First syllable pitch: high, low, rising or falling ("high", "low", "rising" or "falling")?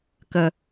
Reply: low